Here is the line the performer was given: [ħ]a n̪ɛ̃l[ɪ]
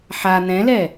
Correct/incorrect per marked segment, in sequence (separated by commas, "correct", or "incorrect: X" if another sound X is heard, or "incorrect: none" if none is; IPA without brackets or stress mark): correct, incorrect: ɛ